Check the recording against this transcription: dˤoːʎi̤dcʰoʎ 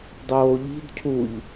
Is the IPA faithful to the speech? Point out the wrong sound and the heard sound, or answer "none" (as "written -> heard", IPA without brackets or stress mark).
o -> u